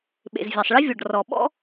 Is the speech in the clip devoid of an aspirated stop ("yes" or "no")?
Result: yes